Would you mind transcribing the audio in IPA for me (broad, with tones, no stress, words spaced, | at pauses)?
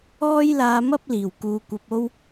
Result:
ɔː˥jlaː˧mɐ˥p̚ liː˨˩wkuː˨˧kʷɐ˧p̚o˥w